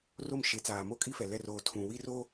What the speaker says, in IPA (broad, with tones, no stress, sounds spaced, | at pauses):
r o˦˨ m ʃ e˨˦ t͡s aː˨ m o˦ kʼ i˦ f ɛ˨ l ɛ˦˨ r oː˨ tʰ ũ˨ w i˦ r oː˦